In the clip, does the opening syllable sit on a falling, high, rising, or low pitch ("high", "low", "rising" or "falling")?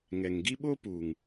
low